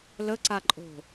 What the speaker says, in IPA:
l ə ǀ a ǃʼ o̤

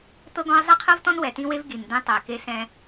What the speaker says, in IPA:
t̪ ɤ˦ ɡ ɔ̃˦ ɪ̯ zˤ ɛ˦ qʰ ɤ˦ v t ɔ̃˦ n w ɛ˨ t ĩ˦ w e˦ v ɡ i˨ n d̪ ẽ˦ tˤ ɤ˨ ɪ̯ k e˦ s ɛ̃˦

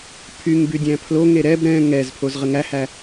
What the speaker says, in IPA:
pʰ y ŋ b y dʲ æ̃ pʰ l o ŋ e ɾ ɛ b ɾ ɛ̃ ŋ ɛ z pʰ o z ʁ ə ŋ æ h æ

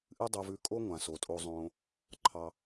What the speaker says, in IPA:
ʔ ɨ˥ dˤ o˧ v ʉ˧ kʼ o˥ ŋʷ ã˩ s o˩ tʼ o˧ zˤ õː˧ | ǃʰ ɑ˧

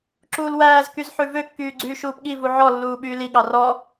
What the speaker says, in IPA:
ǁ uː l w æː z k y z ħ ʉ v ø kː yː ɡ͡ǀ yː ʃ uː p ɠ i v u ʕ ɔ lː uː ɓ yː l i ɠ ɑ r ɔ

